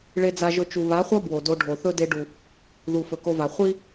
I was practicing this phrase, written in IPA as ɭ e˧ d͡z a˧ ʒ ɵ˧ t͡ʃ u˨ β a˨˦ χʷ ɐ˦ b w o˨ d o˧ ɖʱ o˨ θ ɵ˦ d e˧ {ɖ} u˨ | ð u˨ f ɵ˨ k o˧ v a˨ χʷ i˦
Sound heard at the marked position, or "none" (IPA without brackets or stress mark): ɖ